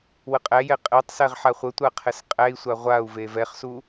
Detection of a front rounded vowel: absent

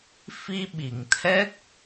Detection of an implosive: present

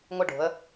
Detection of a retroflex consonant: present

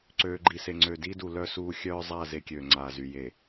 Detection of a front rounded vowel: present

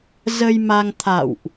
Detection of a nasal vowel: absent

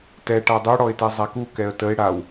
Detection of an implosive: absent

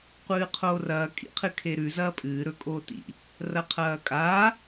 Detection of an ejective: present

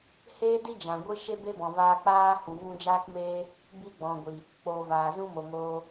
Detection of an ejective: absent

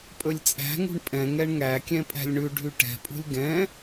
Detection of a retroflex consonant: present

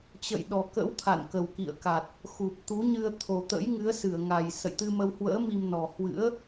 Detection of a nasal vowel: absent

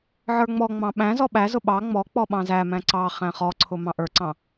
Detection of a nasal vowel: present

